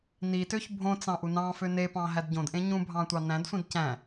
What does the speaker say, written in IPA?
n i t ø ç bʱ õ t͡s ɑ̃ ʔ u n ɑ̃ f ø n e p ɑ̃ ɦ æ d ɟ õ d ʔ ẽ ɲ ũ bʱ ɑ̃ tʷ ɑ n æ̃ d sʷ ĩ d c æ̃

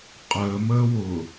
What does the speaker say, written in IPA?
qʼ əː m əː w ʊ

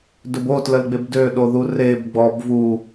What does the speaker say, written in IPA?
d ɵ b o t l ə l ɡ͡b e b d ø ɗ o ð u r e b ɡ͡b ɔ b v u

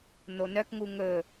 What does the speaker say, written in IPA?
n o n œ k ŋ u ŋ ɵ

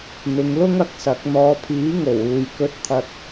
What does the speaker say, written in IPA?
n̪ ɪ˨˧ ŋ l ʊ˥ ŋ ɐ˨˥ k̚ s ɐ˨˥ k̚ n̪ ɔː˨˧ pʰ iː˨˥ ŋ o˨˩ w uː˨ j k ɵ˥ t̚ t̪ʰ ɐ˥ t̚

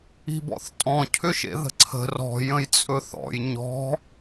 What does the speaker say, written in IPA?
i̤ b ɔ̰ θ tʼ ɔ̃ cʰ ʏ ʃ ḛ ð ə̤ ǀʰ ə̤ r ɔ̤ j ə̃ j t͡sʼ ɵ θ ɔ̰ j ɲ ɔ̤

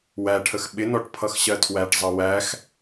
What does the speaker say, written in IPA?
w æ ʈʰ ə x ɓ ɪ n ɔ ʈ pʰ ʌ x ɕ ɜ tʰ w æ ʈ zˤ ʌ w æ x

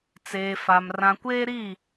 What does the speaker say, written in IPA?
t͡s eː˨ f a˨ m r ã˨ kʷ eː˦ ɾ i˦˨

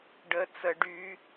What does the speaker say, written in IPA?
ɖ ə t͡s ə ɖ y

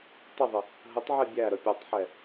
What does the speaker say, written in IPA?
tˤ ɪ ðˤ ɪ | ɦ ə tˤ ʕ ɛ bʲ æ ɾ ə pʲ ɔ tˤ ħ ɛ

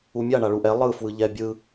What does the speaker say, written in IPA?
u mʲ a ɳ a ɭ u ʔ ɛ lˠ ɯ f w ɯ ʎ ɛ bʲ ɯ

